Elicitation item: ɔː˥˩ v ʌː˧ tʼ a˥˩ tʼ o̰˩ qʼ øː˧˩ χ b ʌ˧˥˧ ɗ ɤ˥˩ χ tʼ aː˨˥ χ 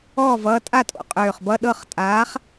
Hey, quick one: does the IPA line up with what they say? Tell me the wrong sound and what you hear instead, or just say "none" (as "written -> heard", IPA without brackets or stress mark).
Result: none